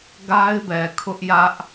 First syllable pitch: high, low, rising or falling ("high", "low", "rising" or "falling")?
high